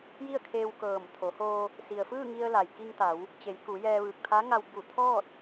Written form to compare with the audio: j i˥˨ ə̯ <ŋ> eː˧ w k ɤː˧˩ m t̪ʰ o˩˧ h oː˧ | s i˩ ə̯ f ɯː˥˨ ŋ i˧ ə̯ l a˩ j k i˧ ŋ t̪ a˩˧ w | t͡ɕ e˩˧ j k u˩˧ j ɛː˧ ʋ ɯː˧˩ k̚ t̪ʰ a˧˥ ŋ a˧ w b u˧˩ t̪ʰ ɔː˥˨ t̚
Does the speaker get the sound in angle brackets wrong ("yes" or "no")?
yes